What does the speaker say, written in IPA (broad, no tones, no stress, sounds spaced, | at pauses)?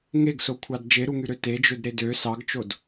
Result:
ŋ e ɡ s o kʷʰ ɑ d d͡ʒ e ɾ u ŋ y ɾ ø t e d͡ʒ ø d ɾ e d ø s ɑ ɡ t͡ʃ o d